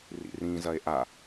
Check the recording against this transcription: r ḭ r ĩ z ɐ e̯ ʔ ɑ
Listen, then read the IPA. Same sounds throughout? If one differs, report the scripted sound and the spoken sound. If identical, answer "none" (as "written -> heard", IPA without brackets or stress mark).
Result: ɑ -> a